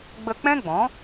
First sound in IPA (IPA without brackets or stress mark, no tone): ɡ͡b